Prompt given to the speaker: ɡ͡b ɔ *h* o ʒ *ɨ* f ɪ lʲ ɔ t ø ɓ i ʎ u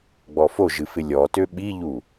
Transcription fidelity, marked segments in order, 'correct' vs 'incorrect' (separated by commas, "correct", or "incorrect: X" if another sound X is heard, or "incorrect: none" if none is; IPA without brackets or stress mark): incorrect: f, correct